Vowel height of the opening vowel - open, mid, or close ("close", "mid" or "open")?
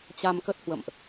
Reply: open